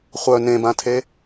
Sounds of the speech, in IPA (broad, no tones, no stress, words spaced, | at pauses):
χʷœ nẽbãtʰe